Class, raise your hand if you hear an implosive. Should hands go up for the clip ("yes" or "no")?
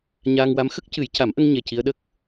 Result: yes